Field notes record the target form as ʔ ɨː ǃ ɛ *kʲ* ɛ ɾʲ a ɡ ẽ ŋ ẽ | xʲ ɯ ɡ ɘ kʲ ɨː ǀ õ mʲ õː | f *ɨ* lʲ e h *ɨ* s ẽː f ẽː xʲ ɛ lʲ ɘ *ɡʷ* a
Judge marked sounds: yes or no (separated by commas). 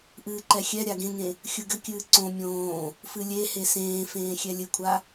no, yes, no, no